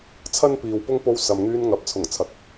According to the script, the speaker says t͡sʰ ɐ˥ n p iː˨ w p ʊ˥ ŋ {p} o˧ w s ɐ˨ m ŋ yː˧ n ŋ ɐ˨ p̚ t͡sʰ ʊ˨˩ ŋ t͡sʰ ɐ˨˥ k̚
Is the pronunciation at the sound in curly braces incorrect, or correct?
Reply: correct